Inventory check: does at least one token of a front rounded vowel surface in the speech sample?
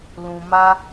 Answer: no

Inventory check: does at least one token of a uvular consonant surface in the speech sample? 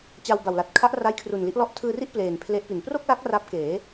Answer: no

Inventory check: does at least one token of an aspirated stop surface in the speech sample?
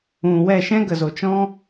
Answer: no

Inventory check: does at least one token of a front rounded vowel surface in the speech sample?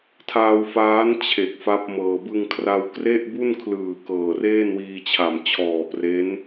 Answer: no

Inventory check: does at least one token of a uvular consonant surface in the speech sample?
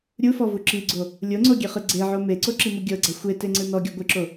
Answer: yes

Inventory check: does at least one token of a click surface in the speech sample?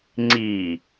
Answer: yes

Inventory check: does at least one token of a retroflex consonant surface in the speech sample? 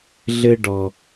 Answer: yes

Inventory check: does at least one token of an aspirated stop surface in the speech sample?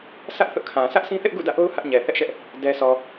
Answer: yes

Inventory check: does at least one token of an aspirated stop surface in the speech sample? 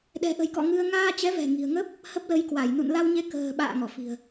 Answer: no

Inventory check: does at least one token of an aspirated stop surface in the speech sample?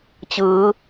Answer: no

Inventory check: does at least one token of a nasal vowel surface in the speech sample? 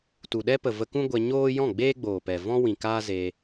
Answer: yes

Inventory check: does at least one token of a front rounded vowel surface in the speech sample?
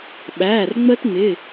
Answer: no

